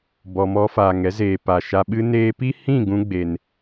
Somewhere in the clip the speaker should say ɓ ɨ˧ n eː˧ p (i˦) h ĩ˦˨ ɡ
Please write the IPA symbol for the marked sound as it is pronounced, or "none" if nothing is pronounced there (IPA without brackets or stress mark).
i˦